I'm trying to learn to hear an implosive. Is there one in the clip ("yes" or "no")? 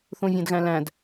no